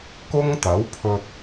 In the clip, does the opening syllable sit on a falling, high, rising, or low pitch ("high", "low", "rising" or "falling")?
high